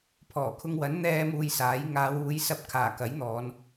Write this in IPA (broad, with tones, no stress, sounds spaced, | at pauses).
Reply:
pʰ ɔː˨˩ kʰ ʊ˧ ŋ w ɐ˨˥ n n̪ ɛː˥ m uː˧ j s aː˨˥ j ŋ aː˨˧ w uː˨˧ j s ɐ˧ p̚ kʰ aː˨˩ k ɐ˨˥ j n̪ ɔː˨˧ n